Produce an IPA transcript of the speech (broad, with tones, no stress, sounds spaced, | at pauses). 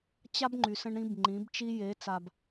t͡ɕ a˦ b ŋ͡ǃ y˨ s ə̃˦ ɳ ɾ ĩ˦ b ŋ͡ǃ ĩ˨˦ b t͡ʃ i˦ j e˨˦ t͡s a˨ b